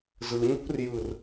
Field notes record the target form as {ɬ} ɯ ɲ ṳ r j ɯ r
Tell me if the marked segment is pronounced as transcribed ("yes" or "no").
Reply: no